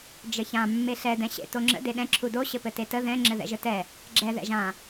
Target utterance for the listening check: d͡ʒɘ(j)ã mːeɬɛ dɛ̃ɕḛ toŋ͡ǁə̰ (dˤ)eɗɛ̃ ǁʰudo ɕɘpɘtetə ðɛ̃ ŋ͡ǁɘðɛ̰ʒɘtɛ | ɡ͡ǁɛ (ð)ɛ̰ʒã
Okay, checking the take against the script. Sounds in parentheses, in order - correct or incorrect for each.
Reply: incorrect: ç, incorrect: d, correct

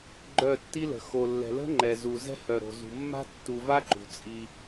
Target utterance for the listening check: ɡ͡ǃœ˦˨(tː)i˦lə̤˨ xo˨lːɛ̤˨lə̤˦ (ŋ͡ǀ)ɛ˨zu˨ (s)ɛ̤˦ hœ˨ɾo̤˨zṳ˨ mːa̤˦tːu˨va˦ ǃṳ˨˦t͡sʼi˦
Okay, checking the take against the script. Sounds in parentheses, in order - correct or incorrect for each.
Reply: correct, incorrect: ŋ͡ǃ, incorrect: z

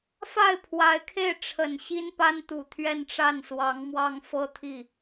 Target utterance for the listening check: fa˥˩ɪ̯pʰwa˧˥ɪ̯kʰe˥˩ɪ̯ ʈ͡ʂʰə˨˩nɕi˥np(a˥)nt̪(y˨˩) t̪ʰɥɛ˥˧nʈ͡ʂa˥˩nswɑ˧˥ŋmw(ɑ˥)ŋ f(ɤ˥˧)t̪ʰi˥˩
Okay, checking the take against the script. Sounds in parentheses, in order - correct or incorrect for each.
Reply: correct, incorrect: u˨˩, correct, correct

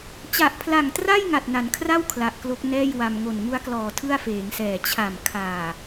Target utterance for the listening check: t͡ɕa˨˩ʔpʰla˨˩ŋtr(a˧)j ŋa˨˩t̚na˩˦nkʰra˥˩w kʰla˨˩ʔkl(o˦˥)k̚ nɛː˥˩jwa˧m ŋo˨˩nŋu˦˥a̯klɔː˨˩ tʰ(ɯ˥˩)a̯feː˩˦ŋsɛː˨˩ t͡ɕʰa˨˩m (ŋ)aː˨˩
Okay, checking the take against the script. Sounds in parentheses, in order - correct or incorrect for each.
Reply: incorrect: a˥˩, correct, correct, incorrect: kʰ

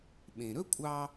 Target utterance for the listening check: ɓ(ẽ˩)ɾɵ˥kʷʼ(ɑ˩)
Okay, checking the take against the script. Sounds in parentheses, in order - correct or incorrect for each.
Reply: correct, incorrect: ɑ˧

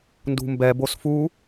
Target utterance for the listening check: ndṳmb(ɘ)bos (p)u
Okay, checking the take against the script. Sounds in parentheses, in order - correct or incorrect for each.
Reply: incorrect: ɛ, incorrect: f

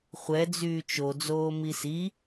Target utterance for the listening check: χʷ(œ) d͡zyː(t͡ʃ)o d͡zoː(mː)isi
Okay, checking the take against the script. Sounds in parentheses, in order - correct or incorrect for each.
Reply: incorrect: ɛ, correct, incorrect: m

